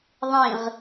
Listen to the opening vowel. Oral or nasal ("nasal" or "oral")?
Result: nasal